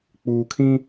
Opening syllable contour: low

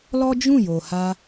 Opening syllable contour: high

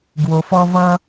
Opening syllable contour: low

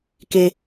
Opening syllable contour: high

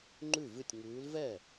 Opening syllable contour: falling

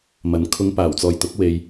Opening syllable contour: rising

